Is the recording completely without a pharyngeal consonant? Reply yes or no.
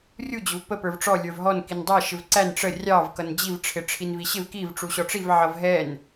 no